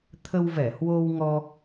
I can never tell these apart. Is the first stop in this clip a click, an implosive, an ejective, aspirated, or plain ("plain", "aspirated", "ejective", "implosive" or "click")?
aspirated